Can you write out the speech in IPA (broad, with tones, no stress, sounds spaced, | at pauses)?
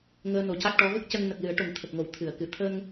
ŋ əː˧ n o˨˩˦ c a˦˥ k̚ ʈ ɔ˧˥ ɣ ə˦˥ k̚ c ə˧ ŋ n ə˨˩ k̚ l ɨ˨˩˦ ə̯ ʈ o˨˩ ŋ t̪ʰ ə˨˩ k̚ ŋ o˨˩˨ w t̪ʰ ɨ˨˩˨ ə̯ k ɨ˨˩ t̪ʰ ə˧ ŋ